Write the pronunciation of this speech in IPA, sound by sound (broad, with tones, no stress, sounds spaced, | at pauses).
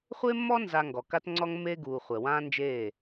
χʷ e˦ mː ɔ˦ n z a˧ ŋ ɡ ɔ˨ k a˧ t ŋ͡ǀ ɔ˧ ŋ mː eː˧ ɡ uː˨ χʷ ɛ˨ w ãː˦ n d͡ʒ eː˦˨